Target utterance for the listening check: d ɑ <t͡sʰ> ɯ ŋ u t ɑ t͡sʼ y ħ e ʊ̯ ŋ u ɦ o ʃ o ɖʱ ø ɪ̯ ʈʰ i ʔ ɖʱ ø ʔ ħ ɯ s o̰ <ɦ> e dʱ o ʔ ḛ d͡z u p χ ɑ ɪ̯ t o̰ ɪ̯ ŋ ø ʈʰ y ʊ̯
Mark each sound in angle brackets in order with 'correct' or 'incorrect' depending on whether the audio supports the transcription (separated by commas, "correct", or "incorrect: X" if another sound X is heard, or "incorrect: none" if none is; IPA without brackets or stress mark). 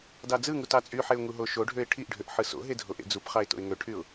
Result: incorrect: d͡z, correct